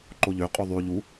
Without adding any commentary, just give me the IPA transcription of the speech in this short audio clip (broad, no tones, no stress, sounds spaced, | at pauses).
ǃ o ʎ ø qʼ y ðˤ y ʎ u